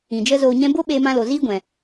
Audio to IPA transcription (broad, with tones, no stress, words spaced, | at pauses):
ĩ˨d͡ʒə˦ zoː˨ɲɛ̃˧bo˦ ɓeː˧mã˧lo˨ ziː˦ɡʷɛ̃˨